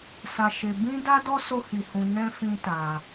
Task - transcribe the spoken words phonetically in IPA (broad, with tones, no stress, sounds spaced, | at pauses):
s a˦ ʃ e˦ b ĩ˦ d a˦ d ɔ˦ s o˦ h i˧ h ũ˧ n ɛ̃˦ f ĩ˦ t a˧